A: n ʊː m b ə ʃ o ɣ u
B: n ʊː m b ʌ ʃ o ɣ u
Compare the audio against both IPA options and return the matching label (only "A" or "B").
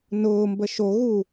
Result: A